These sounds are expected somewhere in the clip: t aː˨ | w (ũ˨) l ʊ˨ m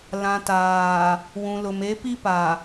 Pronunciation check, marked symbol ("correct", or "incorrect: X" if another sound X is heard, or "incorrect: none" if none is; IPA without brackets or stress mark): correct